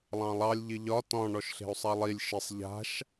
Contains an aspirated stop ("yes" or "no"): no